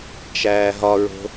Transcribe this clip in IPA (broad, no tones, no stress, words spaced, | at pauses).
t͡ʃæːɦɒɹo̤